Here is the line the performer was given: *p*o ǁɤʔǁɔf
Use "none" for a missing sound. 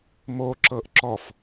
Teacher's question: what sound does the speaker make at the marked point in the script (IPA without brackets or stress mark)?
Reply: m